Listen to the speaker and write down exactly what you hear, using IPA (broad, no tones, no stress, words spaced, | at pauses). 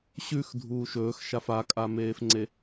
ɕʉxdʱuː ʃɵːxʃaf akʼameːfŋ͡ǀe